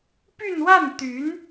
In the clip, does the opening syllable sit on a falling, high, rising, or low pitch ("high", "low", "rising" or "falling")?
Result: falling